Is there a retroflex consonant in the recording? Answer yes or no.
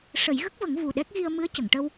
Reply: yes